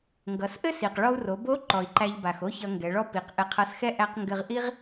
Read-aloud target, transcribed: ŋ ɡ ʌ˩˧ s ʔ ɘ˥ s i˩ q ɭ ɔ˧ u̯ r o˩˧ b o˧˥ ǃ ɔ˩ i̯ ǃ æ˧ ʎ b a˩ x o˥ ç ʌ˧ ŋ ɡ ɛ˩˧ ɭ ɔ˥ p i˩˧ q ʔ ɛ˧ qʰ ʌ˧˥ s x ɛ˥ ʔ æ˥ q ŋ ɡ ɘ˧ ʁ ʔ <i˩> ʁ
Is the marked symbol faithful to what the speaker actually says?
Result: no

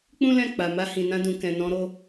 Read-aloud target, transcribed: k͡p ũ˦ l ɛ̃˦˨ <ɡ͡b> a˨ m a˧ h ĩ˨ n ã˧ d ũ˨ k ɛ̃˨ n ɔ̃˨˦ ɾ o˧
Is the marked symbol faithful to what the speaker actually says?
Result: no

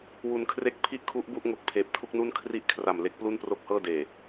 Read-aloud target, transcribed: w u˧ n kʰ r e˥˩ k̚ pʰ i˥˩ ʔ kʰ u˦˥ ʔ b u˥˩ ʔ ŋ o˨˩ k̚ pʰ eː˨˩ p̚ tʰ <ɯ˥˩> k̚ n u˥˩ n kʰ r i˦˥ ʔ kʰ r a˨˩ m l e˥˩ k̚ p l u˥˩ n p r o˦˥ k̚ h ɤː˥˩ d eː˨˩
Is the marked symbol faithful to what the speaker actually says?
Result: no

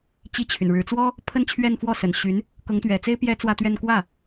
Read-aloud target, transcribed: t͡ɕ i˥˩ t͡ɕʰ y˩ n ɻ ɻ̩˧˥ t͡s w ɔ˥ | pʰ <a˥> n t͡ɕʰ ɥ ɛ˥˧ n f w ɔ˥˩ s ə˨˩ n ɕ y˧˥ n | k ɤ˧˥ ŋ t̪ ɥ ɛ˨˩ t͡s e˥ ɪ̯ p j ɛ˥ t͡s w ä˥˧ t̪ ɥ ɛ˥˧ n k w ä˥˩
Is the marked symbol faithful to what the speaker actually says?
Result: no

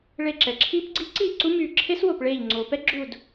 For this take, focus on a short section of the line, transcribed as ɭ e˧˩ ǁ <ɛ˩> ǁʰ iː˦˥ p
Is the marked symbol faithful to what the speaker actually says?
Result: yes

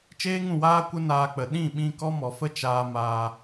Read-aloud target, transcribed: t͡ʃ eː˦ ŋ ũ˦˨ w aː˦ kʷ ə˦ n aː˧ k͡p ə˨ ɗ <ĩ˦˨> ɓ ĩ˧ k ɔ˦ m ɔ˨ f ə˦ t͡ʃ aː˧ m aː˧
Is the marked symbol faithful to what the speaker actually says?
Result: yes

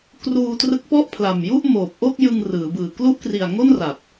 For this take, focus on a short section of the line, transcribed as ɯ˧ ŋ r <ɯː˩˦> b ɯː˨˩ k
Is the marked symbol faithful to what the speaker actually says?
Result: yes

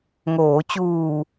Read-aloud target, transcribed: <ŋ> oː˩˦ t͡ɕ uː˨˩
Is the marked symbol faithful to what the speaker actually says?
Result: yes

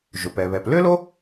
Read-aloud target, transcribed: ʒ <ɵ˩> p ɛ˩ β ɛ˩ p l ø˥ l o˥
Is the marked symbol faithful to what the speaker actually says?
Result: yes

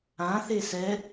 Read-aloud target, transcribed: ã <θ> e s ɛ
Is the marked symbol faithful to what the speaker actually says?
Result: yes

